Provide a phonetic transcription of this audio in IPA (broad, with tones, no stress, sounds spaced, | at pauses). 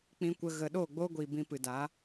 k͡p ĩ˧ kʷ ə˧ ɣ ə˨ ɗ oː˦˨ ɡ͡b oː˦ ɡʷ iː˨ b ĩ˧ p ɨ˨ d a˨˦